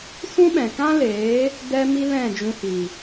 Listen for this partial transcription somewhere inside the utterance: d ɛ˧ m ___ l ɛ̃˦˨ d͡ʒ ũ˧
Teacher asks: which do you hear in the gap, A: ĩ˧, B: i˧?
B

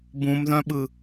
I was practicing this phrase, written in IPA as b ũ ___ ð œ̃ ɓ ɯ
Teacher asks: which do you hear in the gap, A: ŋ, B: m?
B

